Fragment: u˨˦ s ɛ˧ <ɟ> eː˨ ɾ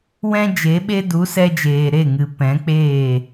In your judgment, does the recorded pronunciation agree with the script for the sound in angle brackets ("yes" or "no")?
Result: no